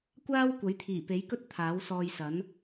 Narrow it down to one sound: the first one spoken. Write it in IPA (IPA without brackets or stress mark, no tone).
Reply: kʷ